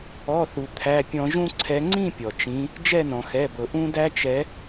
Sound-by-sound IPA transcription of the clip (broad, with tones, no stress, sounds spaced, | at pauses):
ɔ˩˧˩ θ u˩ t̪ʰ æ˩˧˩ pʲ ɔ̃˧˩˧ ʒ ũ˦ ǀʰ ɛ˨˦ ŋ͡ǀ ĩ˥˨ pʲ ɔ˩ t͡ʃ ĩ˨˦ | d͡ʒ ɛ˥˨ n ɔ̃˩ x ɛ˩˧˩ b ɤ˩ ʔ ũ˦ d æ˦ t͡ʃ ɛ˨˦